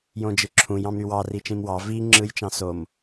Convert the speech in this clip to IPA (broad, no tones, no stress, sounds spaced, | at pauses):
j õ d͡ʒ ɯ ǁʰ ũ j ɑ̃ m ɾ y w ɑ r i t͡ʃ ĩ m w ɑ v i ŋ͡ǁ ɯ j t͡ʃ ɑ̃ s o m